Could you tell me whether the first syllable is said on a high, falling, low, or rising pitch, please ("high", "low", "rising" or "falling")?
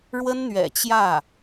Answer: high